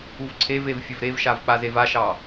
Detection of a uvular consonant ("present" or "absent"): absent